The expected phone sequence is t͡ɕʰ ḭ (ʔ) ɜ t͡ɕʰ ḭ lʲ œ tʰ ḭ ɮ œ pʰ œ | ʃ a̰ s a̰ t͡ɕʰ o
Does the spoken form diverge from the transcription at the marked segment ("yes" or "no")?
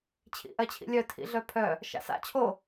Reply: no